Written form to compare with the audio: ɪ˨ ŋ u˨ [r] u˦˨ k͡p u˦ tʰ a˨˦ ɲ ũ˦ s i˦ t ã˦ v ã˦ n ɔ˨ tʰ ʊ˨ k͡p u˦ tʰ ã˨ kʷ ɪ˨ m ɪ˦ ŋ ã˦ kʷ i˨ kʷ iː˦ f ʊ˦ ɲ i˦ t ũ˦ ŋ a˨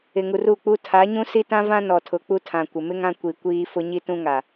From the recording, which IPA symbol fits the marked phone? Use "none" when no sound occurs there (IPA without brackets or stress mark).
r